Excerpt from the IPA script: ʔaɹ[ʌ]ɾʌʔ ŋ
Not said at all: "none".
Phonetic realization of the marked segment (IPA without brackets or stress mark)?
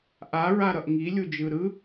a